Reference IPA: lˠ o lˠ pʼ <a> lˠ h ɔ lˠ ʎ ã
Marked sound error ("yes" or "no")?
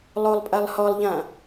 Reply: no